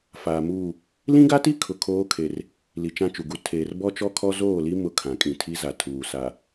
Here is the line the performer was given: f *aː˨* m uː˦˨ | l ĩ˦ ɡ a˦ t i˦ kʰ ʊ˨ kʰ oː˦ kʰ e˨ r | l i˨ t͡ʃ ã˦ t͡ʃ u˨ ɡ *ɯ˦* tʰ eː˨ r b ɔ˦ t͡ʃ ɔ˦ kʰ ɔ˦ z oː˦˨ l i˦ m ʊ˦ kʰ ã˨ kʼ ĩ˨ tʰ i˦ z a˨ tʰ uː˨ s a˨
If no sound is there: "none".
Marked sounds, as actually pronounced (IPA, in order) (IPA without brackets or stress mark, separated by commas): aː˨, u˦